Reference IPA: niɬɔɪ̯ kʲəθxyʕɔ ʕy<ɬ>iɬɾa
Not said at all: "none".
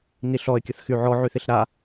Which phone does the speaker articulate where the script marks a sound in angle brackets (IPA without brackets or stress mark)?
θ